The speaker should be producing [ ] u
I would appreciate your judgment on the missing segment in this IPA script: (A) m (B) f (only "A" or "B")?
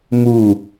A